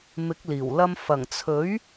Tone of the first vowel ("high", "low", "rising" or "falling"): rising